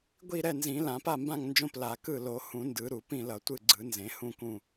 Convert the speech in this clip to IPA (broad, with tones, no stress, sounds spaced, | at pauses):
ɡʷ i˦˨ ɾ ɛ˦˨ n z ĩ˨˩˦ l ã˨˩˦ p a˦˨ m b ã˦˨ ŋ n d͡ʒ õ˦˨ p l a˨˩˦ k ɯ˦˨ l o˨˩˦ h ũ˨˩˦ n d ɯ˨˩˦ ɾ u˨˩˦ p ĩ˦˨ l ʌ˨˩˦ tʷ ɯ˦˨ ɡ͡ǀ ɯ˨˩˦ n z ẽ˨˩˦ h ũ˦˨ k ũ˦˨